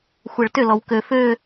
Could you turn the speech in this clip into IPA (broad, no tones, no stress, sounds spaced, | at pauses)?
xʷ ɛ ɭ t ʏ l ɔ w k ø f ø